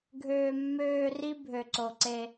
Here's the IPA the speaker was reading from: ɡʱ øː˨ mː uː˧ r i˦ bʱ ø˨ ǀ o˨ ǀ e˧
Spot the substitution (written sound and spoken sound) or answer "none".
uː˧ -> øː˧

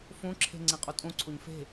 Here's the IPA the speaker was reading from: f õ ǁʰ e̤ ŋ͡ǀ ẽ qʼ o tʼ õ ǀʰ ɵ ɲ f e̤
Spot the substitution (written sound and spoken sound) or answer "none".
ɵ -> o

